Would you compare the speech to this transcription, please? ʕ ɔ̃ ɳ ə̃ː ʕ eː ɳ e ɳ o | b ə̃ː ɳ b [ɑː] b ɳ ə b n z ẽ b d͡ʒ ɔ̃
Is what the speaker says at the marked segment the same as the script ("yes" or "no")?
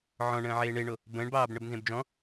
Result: yes